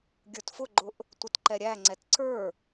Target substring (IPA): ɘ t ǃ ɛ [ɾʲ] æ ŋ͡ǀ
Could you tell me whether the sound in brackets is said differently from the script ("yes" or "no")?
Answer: no